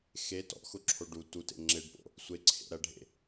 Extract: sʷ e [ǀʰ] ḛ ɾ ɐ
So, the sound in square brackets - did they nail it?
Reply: yes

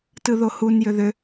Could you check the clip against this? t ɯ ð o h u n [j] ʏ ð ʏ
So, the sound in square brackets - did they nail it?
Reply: yes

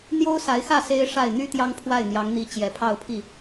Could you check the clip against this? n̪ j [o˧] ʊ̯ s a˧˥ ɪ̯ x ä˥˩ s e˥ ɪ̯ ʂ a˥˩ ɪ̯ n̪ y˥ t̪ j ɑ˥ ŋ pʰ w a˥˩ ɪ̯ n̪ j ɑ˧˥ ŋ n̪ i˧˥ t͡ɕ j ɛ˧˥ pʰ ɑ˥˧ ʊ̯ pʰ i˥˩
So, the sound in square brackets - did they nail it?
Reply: no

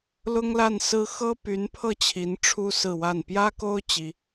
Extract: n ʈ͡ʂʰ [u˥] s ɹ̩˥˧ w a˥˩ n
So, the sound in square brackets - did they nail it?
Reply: yes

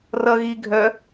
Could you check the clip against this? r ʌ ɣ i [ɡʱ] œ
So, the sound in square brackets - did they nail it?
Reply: yes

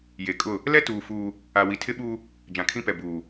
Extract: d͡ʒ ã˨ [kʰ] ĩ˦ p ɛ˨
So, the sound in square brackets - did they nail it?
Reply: yes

